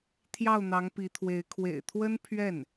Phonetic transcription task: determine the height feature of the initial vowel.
low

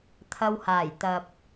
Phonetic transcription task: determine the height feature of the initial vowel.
low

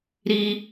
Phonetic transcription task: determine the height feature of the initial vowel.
high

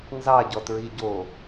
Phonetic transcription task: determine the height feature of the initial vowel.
low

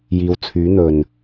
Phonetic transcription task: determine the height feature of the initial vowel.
high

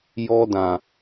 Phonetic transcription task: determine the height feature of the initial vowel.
mid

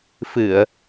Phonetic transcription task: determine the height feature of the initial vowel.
high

